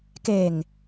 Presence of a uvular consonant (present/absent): absent